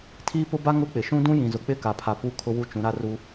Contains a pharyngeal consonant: no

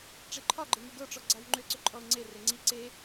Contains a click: yes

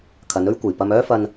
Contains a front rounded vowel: yes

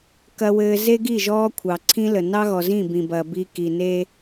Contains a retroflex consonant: no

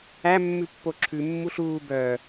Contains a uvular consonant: no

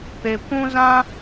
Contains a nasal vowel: yes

